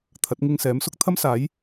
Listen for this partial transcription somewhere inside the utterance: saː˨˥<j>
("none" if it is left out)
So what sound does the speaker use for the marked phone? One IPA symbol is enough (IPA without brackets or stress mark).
j